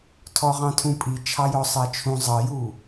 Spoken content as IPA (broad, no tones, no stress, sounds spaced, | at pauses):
tʰ ɔ ʁ ɑ̃ tʰ ũ pʼ i t͡ʃʰ ɑ j ɔ sˤ ɜ t͡ʃʰ ũ zˤ ʌ j u